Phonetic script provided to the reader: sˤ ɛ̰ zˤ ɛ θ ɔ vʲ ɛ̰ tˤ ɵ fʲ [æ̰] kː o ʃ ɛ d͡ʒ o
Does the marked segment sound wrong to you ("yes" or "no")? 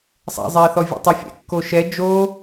yes